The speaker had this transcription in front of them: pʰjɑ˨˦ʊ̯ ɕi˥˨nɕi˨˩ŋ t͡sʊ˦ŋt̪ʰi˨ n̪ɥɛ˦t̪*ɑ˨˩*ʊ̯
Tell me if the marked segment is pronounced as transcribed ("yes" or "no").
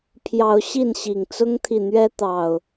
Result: yes